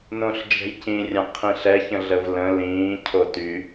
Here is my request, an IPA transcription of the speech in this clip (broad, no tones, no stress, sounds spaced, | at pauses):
n õ ɬ d͡ʒ ɛ̤ j c ĩ rʲ ã qʰ ĩ ɬ ɛ ç ə̃ ɮ ə v l ə̃ l ĩː cʰ o t y